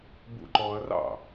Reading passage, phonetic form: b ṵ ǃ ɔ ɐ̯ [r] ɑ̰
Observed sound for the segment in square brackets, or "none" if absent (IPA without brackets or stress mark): r